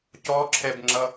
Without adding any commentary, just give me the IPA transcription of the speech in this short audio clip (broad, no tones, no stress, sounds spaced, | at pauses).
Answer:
c ɔ ǁʰ ɛ b ŋ͡ǁ ʌ